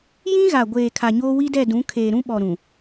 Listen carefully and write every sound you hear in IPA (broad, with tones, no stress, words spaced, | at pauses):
jĩ˦ɣa˨ ɡʷeː˨ kʰa˨ɲoː˦wi˦dɛ˦˨ dũ˨˦ kʰeː˨ɾũ˦ɓɔ˨ɾũ˨